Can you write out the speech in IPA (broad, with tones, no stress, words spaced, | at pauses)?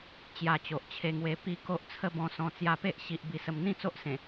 t͡ɕja˧t͡ɕo˨ʔt͡ɕʰe˧ŋwe˧ pi˦ko˦ʔ t͡sʰə˦bɔ̃˧sɔ̃˧ t͡sja˧pe˦ʔɕi˨ʔ bi˨˩sə˧m n̪ĩ˥˧t͡so˦ʔsẽ˨˩